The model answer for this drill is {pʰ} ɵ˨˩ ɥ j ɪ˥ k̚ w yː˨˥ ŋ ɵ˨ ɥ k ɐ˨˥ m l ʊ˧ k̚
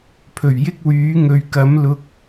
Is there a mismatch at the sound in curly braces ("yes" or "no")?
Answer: no